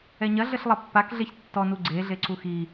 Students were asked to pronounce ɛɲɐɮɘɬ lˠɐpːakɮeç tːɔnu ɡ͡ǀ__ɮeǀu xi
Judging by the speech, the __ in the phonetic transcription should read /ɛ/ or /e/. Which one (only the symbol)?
e